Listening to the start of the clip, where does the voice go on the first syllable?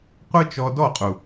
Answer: high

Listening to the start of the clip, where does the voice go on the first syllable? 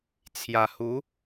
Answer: low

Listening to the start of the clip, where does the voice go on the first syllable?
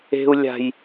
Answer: high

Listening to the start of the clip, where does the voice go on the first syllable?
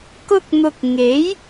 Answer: high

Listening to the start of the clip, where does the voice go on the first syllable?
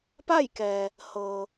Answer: falling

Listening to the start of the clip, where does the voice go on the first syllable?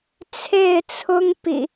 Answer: falling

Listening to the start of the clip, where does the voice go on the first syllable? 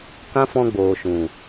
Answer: high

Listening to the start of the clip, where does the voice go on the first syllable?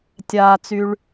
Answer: low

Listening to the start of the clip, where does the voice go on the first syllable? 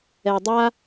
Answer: low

